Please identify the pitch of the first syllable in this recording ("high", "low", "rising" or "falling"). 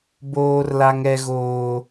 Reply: high